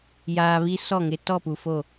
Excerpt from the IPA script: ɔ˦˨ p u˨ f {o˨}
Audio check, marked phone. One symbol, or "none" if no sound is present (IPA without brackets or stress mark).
o˦˨